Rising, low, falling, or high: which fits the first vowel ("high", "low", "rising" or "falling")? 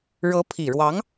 rising